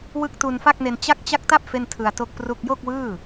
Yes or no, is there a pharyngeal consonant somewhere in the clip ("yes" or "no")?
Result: no